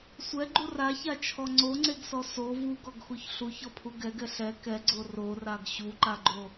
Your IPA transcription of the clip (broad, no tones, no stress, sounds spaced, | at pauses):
sʷ ɛ ɡ͡ǃ u r a ç a t͡ʃʰ ɔ ŋ͡ǀ o ŋ͡ǀ e ɡ s ɔ s o v u ɡ ɔ ɡ x u ç ɬ u ç ɔ pʰ u ɡ ɛ ɡ ɛ ɬ ɛ k ɛ ɡ͡ǀ o r o r a ɡ ɕ u ǃ a ɡ͡ǃ o